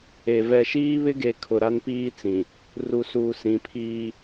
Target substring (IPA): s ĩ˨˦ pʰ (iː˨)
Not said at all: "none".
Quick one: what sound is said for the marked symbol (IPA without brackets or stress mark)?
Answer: iː˦